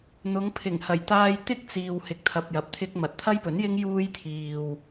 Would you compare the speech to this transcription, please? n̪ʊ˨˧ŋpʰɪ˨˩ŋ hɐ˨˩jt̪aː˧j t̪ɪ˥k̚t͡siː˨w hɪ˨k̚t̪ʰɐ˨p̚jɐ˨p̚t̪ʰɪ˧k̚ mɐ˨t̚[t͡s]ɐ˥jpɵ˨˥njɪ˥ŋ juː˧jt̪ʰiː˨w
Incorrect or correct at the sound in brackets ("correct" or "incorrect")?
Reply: incorrect